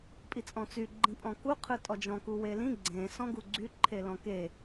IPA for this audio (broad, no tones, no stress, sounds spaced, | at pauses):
pʼ i t͡sʼ ɔ̃ t͡s y ɡ͡ǃ ĩ pʼ ɔ̃ k u qʰ ɯ tʼ ɔ d͡ʒ ɔ̃ k u w e l ĩ ɡ͡ǀ ẽ s ɔ̃ ɡ u ɡ͡ǀ y ǃʰ e l ɔ̃ k e